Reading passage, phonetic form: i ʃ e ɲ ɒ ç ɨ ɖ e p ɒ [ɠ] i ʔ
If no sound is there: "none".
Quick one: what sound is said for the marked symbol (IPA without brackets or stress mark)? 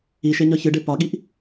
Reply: ɠ